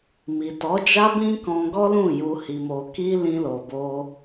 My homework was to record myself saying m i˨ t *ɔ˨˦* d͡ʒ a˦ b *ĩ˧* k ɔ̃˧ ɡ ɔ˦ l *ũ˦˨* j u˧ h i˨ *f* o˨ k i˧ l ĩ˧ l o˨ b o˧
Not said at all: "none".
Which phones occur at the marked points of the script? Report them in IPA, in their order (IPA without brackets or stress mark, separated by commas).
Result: ɔ˨˦, ĩ˦, ũ˦˨, m